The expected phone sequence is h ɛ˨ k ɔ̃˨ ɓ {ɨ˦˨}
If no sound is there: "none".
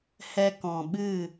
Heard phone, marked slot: ɨ˦˨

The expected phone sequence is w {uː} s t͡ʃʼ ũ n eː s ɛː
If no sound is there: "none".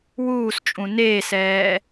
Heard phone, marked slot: uː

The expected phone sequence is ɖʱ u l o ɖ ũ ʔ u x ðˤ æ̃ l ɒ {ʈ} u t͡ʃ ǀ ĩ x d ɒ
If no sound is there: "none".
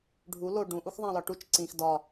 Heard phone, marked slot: ʈ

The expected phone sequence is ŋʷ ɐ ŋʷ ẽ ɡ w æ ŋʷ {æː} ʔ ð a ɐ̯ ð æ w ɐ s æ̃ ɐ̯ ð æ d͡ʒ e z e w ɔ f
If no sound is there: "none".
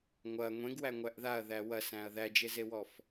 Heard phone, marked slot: æ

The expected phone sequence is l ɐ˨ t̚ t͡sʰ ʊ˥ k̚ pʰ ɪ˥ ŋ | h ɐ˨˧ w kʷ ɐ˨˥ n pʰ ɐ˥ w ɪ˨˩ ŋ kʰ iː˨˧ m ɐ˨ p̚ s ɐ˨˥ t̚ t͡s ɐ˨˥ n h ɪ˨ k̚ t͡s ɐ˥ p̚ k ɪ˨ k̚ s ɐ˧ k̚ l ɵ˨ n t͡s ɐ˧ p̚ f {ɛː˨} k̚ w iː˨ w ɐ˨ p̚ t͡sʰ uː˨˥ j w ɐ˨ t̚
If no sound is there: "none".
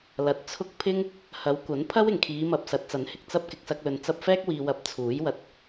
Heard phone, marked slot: ɛː˥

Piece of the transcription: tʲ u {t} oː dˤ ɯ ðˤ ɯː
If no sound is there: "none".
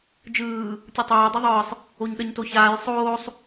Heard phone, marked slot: tˤ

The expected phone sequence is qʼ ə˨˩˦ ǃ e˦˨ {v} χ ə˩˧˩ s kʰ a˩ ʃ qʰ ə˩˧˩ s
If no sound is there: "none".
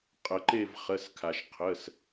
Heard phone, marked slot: v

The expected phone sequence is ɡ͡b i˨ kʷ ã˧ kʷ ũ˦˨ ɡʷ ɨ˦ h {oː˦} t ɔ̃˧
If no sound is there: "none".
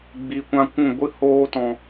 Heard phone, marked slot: oː˦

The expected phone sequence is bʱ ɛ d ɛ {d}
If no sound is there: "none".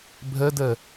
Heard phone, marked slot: none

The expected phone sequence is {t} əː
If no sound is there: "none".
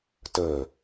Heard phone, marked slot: t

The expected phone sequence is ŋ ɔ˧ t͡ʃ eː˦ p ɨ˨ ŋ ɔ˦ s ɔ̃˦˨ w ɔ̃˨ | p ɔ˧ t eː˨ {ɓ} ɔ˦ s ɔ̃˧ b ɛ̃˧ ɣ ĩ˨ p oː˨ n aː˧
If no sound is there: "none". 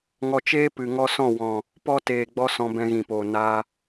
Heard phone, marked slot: ɡ͡b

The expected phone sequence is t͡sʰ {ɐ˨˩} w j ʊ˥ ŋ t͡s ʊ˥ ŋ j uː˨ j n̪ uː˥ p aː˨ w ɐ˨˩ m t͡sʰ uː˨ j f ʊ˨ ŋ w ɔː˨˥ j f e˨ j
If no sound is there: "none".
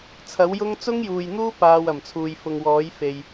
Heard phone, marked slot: ɐ˨˥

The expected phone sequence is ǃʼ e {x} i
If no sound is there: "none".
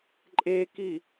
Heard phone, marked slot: k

